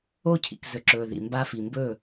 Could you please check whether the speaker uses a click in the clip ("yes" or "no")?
yes